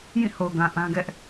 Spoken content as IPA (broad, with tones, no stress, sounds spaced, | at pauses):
j ĩ˦˨ h o˨ ʊ̯ ɡ ã˨ ʔ ã˦ ɡ ɛ˦ ʔ